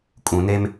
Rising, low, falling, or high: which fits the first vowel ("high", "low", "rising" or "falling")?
low